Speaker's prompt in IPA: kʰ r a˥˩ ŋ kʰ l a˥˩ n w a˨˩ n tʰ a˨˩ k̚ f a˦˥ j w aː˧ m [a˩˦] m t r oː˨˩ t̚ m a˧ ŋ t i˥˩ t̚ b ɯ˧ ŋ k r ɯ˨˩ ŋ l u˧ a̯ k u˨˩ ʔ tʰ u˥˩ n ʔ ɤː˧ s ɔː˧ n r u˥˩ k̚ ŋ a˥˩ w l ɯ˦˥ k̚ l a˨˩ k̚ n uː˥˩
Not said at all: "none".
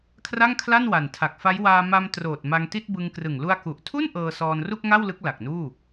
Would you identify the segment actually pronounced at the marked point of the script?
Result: a˧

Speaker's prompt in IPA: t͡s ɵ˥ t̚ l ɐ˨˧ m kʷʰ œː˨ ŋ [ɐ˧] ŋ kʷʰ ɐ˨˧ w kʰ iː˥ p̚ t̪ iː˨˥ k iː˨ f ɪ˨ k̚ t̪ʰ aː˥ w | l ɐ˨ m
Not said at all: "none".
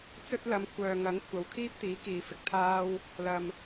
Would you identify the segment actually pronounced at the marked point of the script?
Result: ɐ˨˥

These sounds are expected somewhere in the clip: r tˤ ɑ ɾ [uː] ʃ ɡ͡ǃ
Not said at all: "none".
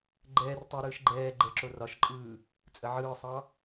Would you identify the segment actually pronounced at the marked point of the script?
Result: ɯː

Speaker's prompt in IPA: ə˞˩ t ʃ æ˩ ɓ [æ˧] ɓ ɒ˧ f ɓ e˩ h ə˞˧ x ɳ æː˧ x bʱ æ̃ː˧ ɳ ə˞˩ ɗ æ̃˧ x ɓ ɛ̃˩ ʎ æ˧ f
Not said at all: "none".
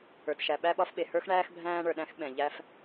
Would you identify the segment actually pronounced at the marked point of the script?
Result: æ˧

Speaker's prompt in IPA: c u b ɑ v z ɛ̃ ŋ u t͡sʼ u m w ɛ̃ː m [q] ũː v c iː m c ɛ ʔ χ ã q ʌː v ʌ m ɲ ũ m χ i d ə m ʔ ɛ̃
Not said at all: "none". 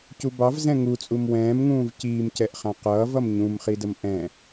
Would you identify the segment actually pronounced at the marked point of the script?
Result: ŋ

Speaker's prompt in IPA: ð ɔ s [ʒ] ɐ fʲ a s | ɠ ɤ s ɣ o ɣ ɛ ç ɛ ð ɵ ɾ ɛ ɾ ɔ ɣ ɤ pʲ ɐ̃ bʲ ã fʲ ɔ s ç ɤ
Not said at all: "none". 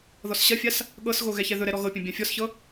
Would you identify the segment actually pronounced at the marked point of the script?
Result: ɕ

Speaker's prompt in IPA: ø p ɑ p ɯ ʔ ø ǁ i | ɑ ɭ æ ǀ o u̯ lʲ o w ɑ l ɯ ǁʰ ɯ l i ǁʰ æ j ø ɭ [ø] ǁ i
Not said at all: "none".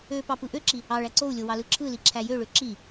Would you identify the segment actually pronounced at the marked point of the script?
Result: ø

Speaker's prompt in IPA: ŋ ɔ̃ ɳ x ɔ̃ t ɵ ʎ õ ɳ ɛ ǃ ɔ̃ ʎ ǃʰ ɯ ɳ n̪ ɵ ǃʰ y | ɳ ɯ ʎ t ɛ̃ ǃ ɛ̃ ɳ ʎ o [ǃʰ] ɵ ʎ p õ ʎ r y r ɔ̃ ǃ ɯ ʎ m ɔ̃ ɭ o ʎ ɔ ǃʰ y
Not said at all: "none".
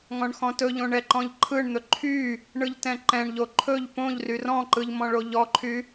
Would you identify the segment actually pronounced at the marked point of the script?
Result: ǃʰ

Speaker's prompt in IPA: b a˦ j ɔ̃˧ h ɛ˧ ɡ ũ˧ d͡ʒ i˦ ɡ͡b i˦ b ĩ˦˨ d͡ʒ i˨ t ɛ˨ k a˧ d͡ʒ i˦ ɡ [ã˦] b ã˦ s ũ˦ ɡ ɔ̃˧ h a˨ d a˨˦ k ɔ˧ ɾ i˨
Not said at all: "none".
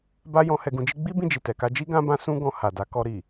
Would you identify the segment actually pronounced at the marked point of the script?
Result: ã˦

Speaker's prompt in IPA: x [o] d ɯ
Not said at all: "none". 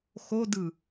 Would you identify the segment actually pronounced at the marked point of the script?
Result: o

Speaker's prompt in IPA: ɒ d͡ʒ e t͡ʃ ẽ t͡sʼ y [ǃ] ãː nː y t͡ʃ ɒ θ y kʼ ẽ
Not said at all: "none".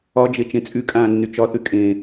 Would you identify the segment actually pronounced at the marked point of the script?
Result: kʼ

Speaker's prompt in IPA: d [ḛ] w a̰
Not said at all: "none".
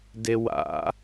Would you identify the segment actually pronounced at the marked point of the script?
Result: e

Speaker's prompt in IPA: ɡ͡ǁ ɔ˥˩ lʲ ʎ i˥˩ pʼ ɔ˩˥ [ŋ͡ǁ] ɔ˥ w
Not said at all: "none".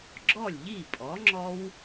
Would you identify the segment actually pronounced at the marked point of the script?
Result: ŋ͡ǁ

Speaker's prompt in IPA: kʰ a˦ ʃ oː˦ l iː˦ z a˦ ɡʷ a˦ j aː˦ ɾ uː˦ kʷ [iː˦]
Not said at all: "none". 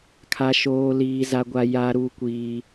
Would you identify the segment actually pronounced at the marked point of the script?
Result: iː˦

